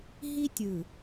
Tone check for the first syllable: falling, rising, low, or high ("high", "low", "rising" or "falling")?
high